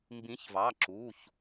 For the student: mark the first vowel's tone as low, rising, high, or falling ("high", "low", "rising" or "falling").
rising